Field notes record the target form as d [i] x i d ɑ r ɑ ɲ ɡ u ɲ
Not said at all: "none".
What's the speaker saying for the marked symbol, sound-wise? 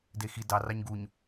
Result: e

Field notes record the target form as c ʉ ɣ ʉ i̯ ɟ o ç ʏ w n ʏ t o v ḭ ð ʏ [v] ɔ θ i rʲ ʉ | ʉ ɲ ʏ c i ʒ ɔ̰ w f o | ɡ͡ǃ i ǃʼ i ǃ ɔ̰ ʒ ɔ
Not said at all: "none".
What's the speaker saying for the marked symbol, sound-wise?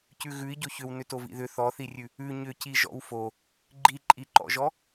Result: θ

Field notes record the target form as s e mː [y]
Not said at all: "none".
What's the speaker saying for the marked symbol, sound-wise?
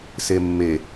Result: e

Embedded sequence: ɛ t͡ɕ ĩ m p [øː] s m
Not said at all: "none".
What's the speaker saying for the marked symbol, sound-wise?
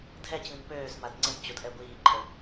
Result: øː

